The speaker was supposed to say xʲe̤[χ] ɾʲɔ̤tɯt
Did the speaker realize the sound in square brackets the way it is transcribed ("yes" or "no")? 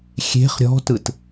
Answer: yes